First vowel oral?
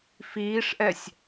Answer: yes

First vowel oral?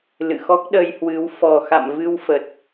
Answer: yes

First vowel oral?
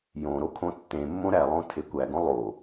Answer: no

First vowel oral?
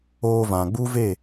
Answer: yes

